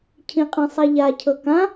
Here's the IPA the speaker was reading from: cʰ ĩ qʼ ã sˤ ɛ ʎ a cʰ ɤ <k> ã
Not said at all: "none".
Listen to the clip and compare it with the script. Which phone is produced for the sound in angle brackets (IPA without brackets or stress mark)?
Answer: k